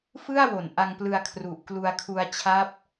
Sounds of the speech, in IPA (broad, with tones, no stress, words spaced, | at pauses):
fɯ˥˩a̯wo˩˦n ʔa˧ŋplɯ˧a̯ kʰru˨˩ʔklu˧a̯kʰu˧a̯t͡ɕʰa˦˥p̚